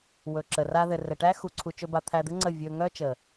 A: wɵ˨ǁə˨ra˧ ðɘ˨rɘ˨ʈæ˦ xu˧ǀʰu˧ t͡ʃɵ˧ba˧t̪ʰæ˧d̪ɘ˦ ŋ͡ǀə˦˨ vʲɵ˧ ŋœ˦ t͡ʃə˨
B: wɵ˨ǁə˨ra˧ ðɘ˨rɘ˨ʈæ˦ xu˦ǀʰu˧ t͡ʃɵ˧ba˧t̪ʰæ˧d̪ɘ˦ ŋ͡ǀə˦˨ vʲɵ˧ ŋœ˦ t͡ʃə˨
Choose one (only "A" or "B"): A